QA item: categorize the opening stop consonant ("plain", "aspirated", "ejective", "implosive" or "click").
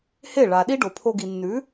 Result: implosive